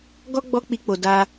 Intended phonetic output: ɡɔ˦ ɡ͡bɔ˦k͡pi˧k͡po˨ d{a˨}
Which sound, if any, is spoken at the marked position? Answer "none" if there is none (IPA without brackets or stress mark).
a˧